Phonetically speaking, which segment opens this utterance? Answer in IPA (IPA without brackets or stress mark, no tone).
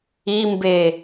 i